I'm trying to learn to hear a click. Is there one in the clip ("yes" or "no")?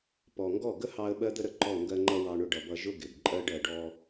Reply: yes